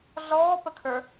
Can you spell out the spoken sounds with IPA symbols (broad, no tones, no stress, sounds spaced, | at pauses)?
ɮ ɔː p ə kʰ ə˞